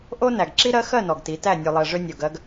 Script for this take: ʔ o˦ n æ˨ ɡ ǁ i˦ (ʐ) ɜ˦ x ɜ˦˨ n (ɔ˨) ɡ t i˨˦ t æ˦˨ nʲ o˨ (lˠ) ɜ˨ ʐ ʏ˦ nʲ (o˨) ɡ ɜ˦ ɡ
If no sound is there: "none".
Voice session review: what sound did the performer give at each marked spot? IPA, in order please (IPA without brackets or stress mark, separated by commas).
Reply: ɾ, ɔ˨, lˠ, o˨